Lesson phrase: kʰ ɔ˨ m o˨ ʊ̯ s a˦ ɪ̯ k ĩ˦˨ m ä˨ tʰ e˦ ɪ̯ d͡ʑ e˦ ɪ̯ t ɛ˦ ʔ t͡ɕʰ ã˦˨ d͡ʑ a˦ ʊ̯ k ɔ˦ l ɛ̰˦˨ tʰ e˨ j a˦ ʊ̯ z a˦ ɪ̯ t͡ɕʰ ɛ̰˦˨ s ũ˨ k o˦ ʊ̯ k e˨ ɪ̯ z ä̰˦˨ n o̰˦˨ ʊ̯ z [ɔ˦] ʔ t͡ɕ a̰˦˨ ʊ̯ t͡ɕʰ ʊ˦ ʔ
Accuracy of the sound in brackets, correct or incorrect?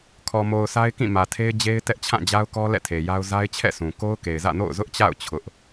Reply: incorrect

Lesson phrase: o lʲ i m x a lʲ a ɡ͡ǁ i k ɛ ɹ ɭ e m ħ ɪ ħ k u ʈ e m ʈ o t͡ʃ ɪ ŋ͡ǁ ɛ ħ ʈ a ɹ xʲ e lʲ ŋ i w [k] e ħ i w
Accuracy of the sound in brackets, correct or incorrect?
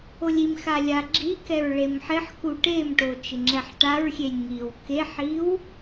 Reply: correct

